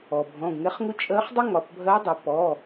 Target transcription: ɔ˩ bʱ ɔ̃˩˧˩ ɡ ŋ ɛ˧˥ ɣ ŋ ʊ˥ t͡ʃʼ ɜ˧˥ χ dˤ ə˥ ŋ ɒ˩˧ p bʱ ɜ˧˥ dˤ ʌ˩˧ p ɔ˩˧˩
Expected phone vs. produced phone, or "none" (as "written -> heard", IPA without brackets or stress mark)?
ɣ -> χ